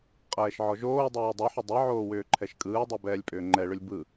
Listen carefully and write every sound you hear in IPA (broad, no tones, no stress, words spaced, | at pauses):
qʼɛːʃʕɔʒoːdˤɛː dˤɛħʏ dˤɯʕoː wʏːǃʰɛʃkʼɯːdˤɛ bɛːlʲpʼʏːŋ͡ǃɛɭʏlʲ bɯ